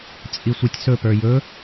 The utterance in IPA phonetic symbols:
t͡sʼ i sʷ i tʲ s ɵ p ə˞ j ɵ

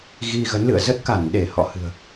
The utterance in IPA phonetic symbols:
ɣ i˧ ɣ ə˨˦ n l ɨ̰˧˨ ə̯ z ə˦˥ t̚ k a˧˩ n ɗ e˧˩ h ɔ̰˧˨ h ɨ̤˨˩ ə̯

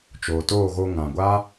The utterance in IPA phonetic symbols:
t͡ʃ oː˨ t oː˦˨ ɣ o˧ ŋ ã˨ ɡʷ a˦

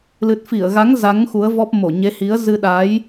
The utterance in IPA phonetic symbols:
l ɨ˨˩ t̚ f i˧˩ ə̯ ɣ a˨˦ ŋ z a˨˦ ŋ x u˨˦ ə̯ v ɔ˦˥ p̚ m o˧˩ ɲ e˨˦ h i˨˦ ə̯ z ɨ˧ ɗ a˨˦ j

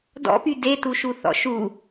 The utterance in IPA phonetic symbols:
d ɔ̰ p y d e t u ʃ u θ ɔ̰ ʃ u

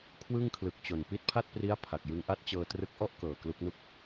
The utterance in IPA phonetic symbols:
kʰ w ɯ˥˩ ŋ kʰ l ɯ˨˩ k̚ t͡ɕ o˨˩ n p i˦˥ t̚ pʰ a˥˩ t̚ p r i˦˥ a̯ pʰ a˨˩ k̚ j ɯ˧ ŋ ʔ a˦˥ t̚ t͡ɕ ɤː˧ t r ɯ˦˥ k̚ ʔ ɔ˥˩ ʔ k ɤː˨˩ k l u˦˥ k̚ n u˥˩ k̚

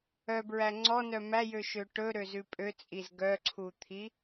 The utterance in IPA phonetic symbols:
œ b ɹ æ ŋ͡ǀ ɔ n œ m æ j ø ʃ ø ʈ ɵ ɾ ø z ʉ pʼ ø t͡sʼ i z ɡ œ ǀʰ u t̪ʰ i

